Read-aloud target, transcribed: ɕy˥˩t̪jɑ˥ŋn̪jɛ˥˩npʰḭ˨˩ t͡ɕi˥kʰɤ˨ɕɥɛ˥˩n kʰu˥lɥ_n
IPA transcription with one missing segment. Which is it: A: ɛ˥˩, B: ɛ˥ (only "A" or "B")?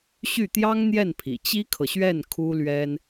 B